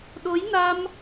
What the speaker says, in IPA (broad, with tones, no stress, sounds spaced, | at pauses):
ɗ o˨˦ j n a˧ m